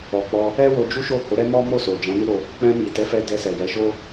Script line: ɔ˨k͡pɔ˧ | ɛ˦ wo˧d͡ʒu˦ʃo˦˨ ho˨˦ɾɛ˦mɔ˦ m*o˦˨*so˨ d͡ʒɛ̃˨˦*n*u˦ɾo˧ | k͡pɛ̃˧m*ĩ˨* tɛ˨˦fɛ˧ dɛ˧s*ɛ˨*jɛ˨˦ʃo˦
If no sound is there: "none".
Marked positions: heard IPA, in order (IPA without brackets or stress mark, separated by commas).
o˦˨, n, i˨, ɛ˨